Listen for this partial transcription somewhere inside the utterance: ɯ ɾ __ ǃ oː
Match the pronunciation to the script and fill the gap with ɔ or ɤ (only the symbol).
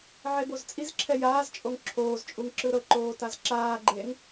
ɤ